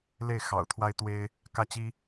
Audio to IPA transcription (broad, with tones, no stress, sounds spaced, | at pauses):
l e˥˩ ɪ̯ x ɑ̰˨˩ ʊ̯ t̪ʰ w a˥ ɪ̯ t̪ w e˥ ɪ̯ | k ä˥˩ t͡ɕ i˥